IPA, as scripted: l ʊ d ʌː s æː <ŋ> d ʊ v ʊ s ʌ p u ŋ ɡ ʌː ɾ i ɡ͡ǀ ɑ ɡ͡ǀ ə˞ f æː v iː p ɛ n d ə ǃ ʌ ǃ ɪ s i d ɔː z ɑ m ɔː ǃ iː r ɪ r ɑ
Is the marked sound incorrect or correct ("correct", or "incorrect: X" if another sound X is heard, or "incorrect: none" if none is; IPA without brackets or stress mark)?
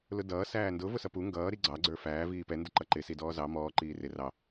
incorrect: n